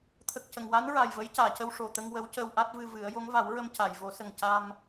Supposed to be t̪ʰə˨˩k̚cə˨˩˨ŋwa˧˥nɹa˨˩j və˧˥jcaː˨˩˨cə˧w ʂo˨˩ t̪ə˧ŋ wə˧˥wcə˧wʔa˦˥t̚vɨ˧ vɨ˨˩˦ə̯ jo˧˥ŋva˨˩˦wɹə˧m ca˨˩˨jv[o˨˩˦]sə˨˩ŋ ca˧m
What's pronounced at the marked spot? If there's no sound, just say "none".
o˨˩˦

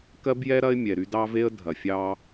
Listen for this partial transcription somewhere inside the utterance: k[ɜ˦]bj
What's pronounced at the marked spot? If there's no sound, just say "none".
ɜ˦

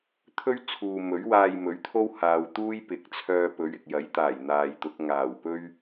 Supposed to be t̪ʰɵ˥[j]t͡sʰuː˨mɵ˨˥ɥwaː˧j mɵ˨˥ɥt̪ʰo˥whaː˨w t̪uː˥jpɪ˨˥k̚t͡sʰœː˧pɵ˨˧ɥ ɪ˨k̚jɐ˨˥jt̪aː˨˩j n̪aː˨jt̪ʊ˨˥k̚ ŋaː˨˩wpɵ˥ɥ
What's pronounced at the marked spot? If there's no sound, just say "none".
ɥ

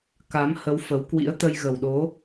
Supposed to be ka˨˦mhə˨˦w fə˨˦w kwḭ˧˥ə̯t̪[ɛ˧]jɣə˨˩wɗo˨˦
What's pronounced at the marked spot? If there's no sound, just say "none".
ə˧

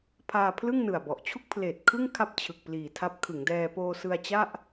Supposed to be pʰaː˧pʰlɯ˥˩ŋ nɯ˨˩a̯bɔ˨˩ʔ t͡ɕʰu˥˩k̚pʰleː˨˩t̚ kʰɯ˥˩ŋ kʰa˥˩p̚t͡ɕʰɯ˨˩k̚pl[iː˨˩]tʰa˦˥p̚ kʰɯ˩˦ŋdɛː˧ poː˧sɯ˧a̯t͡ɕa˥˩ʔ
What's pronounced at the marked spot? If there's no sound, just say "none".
iː˨˩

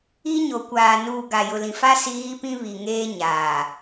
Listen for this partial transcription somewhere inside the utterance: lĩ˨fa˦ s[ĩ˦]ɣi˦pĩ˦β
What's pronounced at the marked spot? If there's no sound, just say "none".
i˦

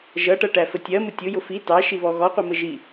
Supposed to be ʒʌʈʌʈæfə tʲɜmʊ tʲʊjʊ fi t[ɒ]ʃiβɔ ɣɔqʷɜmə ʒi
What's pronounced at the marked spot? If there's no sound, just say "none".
ɑ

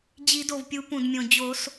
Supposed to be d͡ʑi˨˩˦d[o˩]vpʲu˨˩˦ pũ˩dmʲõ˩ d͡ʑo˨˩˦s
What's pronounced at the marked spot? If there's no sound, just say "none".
o˩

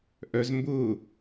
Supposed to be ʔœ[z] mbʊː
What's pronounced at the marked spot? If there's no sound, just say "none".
z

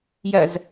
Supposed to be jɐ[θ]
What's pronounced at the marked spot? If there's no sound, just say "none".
z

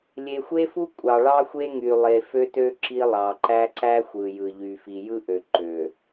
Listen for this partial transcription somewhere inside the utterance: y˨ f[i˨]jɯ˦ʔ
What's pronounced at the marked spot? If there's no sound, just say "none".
i˨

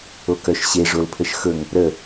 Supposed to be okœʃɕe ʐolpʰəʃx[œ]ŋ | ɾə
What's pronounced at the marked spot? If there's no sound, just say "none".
ɵ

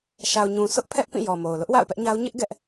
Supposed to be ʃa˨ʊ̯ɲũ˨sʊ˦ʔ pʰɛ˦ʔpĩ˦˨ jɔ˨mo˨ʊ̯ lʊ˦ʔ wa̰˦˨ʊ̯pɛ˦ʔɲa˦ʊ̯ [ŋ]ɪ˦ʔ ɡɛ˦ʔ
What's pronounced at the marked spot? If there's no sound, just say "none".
ɲ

